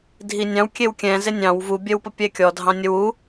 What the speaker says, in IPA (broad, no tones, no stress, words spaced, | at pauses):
dʱinʲɑ̃w kʲewkʲɛ̃ zenʲɑ̃w vu bʲɛwpəpʲɛkʲɔ dʱɑ̃nʲəwu